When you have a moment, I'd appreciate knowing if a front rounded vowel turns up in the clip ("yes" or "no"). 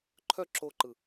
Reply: yes